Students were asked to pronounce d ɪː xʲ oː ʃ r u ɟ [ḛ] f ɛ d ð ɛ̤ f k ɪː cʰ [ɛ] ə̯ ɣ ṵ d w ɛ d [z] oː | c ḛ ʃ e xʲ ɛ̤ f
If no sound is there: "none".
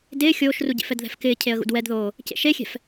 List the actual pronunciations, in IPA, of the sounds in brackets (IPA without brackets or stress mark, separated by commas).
ḛ, e, ð